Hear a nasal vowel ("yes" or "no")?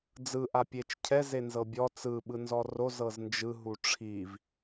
no